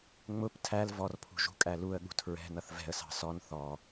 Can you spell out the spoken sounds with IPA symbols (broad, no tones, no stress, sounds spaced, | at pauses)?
ŋ͡m ʊ p tʰ æ l v ɔ r pʰ ṳ ʒ ṳ kʼ æ l u ə̯ ɠ ṳ tʰ ɹ ɛ̤ n ʌ θ v ɛ̤ ə̯ s ɑ̤ s ɔ n θ ɔ